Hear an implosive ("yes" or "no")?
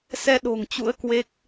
yes